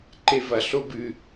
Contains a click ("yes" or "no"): yes